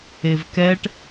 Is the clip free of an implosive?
yes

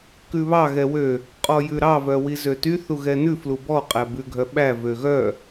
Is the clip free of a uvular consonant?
no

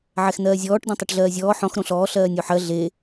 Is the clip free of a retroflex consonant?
no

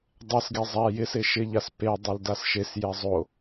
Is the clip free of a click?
yes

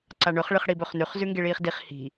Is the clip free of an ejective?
yes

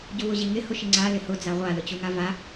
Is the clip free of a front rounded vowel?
yes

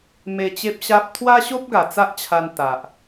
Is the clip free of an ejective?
yes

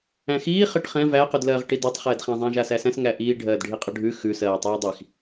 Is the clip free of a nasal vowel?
no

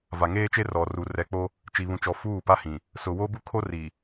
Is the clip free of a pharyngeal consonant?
yes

